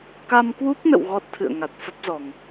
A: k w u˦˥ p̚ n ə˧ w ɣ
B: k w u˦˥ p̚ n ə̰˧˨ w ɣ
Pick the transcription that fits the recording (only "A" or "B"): B